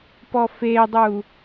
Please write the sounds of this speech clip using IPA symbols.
pɔfedˤu

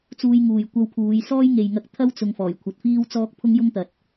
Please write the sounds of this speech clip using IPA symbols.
t͡suː˧jŋuː˨j kʷɐ˧wpʰuː˨˧j sɔː˥jŋe˨jŋɐ˧k̚ t̪ʰɐ˥wt͡sʊ˨ŋ fɔː˨˩j kʷʰɐ˨t̚fiː˥wt͡sɔː˥k̚ pʰʊ˥ŋjʊ˥ŋt̪ɐ˨t̚

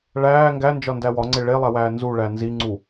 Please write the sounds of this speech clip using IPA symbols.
ɭæː ŋɡænd͡ʒɒndæ wɒŋ͡ǀe ɭelˠæwæː nzuɭæ nziŋ͡ǀu

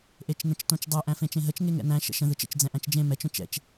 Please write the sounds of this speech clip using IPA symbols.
ʔet͡ʃnə̃t͡ʃtõt͡ʃdˤɛ ʔæ̃fẽt͡ʃẽɦət͡ʃ ŋeŋɛ̰næ̃ ʃə̰ʃə̃ ðɯt͡ʃə̰t͡ʃ d͡zɛ̃ʔæ̃t͡ʃd͡ʒẽ mɛt͡ʃ õt͡ʃɛ̰t͡ʃ

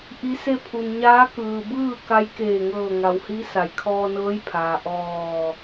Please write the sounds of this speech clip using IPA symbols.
ʔi˧˥se˥˨ pʰu˩nɲaː˧˥ kɯː˩bɯː˥˨ ka˧˥j keː˧˩ŋɤː˧˩ ŋa˩whi˧˥ sa˩˧jkʰɔː˧nɤː˧˥jpʰaː˩ ʔɔː˧˩

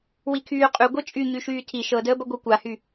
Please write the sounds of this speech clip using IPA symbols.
wikʰyːqʼy ɡʷɤt͡ʃʼy ɲyʃyːtʰi ʃɤdəːbɐ ɡʷɤkʷahy

